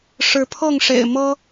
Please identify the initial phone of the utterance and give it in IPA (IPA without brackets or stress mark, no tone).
ʂ